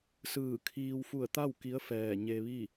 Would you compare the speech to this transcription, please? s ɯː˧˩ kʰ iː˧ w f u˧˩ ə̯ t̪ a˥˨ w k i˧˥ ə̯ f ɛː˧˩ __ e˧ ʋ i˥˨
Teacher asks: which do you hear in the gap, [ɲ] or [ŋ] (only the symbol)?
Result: ɲ